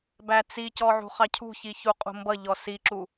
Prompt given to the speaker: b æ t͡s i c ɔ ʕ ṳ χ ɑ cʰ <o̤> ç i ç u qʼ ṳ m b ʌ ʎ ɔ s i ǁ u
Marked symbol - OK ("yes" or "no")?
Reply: no